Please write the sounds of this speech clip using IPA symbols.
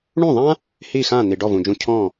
ɳũ˥˩ðˤã˥ | hi˥˩xã˥˩ n̪i˩ɖɔ˥˩vũ˩d͡ʒũ˧ cʰɔ̃˥˩

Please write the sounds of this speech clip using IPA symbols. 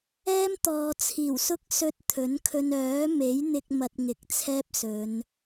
ɛː˥mt̪ɔː˨t͡sʰiː˨˩wsʊ˥k̚ sɵ˧t̚ t̪ʰɵ˨˥nkʰɵ˧n œː˨˥me˨˥jn̪ɪ˧k̚ mɐ˧t̚ŋɪ˨˥k̚t͡sʰɛː˥p̚sɵ˨˧n

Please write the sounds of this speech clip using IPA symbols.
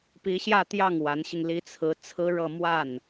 pi˧˥ɕjä˥˧t̪jɑ˥˩ŋ wa˧˥nɕi˧ŋli˥ t͡sʰɹ̩˧˥ t͡sʰɹ̩˥ɻɤ˥˧ mwa˥˩n

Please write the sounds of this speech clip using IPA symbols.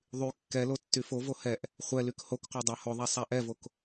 ðˤy kːɛlo tːyfovo hɛʔ | χʷɛlyk hokqʷa dˤahoðˤa sˤaʔɛvok

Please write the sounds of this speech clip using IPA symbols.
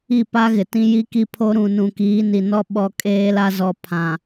i˦˨pa˦ɣɪ˨ tĩ˦ji˦ki˦ pʰo˦ ɾũ˨nũ˨ kiː˨˦ni˨nɔ˦ ɓɔ˦˨kʼeː˦la˦zɔ˨ pʰã˨

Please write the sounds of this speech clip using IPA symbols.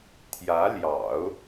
t̪ʰjä˧˥ljɑ̰˨˩˦ʊ̯

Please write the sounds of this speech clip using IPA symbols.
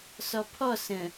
sɔpʰɔs ə̃

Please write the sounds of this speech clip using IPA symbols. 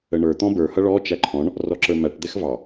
əɳə˞ t̪ɔ̃bə˞hʌ ɭɔ t͡ʃæǃʰɔ̃ɳ | rɔǁə˞mæʈ d̪ɛxvɑ

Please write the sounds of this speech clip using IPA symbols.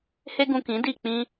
he˦ɡũ˧ kĩ˨˦ di˦˨ k͡pĩ˧

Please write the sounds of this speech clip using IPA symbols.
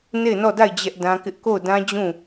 ne˦˨ɪ̯nɔ˦˨da˦˨ɪ̯ d͡ʑɛ˦ʔdã˦kɪ˦ʔ ko˦˨ʊ̯dã˦ d͡ʑũ˦˨

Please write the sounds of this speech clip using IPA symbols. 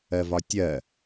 ɜvɒtʲɜ

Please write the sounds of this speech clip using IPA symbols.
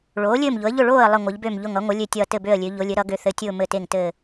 ɭoː˩˥lʲɘː˥˨mʎʊ˩˥ə̯ʎʊ˥˨ ɭoː˥˨ə̯ lˠə˥˨ŋʷɘ˩˥ʎbø˥˨mʎʊ˥˨ŋ ʌ˩˥ŋʷə˩˥ lʲø˥˨tʲʌː˥˨ tɘ˥˨bø˥˨ə̯lʲø˩˥ ʎʊ˩˥lʲɘ˩˥ ɾʌ˩˥ɡø˩˥θɘ˩˥tʲʊː˥˨ mɘ˥˨te˥˨ŋtɘː˥˨

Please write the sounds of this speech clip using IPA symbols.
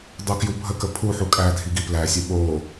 dˤukjubʱəkə pʰu ħukʼædʱi ɡiplæsʲə ɓo

